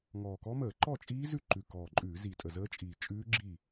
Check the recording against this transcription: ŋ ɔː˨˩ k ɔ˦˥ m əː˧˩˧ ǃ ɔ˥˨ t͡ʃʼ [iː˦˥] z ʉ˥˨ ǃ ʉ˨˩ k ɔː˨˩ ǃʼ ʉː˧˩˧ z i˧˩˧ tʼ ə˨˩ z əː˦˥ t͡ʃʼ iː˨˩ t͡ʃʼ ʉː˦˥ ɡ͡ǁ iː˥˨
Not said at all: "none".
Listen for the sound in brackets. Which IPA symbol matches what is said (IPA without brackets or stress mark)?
iː˦˥